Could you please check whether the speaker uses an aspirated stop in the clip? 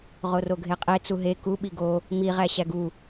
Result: no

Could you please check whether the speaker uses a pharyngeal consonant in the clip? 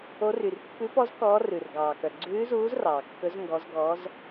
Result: no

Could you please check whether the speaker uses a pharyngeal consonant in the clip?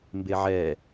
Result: yes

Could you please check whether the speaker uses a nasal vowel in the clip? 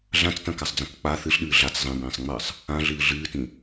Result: yes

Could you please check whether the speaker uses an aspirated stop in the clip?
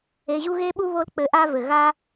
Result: no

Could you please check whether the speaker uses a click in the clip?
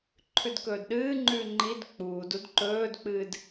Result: yes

